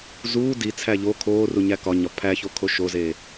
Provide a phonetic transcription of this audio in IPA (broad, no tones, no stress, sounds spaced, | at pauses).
z uː d i t͡sʰ æ ʎ o kʰ oː r u ɲ æ k ɒ ɲ ɒ pʰ æ ç o kʰ o ʃ o z e